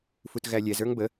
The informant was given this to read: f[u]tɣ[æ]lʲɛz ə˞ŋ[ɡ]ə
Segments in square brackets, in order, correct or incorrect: correct, correct, incorrect: b

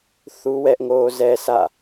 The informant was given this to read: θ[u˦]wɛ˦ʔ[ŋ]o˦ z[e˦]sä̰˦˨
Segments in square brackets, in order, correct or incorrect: correct, correct, incorrect: ɛ˦

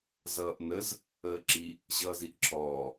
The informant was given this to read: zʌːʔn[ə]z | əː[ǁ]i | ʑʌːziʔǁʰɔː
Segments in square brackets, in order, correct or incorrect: correct, correct

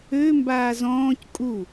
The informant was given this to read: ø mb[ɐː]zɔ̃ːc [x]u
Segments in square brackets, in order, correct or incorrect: incorrect: aː, incorrect: kʼ

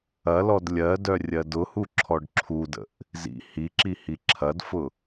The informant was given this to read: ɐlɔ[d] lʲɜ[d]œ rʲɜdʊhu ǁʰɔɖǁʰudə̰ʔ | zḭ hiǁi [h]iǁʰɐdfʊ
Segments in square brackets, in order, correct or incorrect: correct, correct, correct

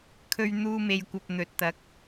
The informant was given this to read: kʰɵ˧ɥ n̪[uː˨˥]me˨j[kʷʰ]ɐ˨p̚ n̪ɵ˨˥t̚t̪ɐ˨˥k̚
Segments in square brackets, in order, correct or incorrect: incorrect: uː˧, incorrect: kʷ

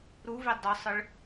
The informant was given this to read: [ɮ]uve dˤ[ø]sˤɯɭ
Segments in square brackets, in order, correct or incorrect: incorrect: ɾ, correct

